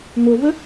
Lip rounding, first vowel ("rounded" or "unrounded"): rounded